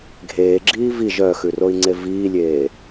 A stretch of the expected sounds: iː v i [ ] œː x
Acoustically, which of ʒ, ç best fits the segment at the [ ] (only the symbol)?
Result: ʒ